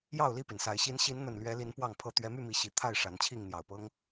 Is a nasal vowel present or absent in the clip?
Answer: absent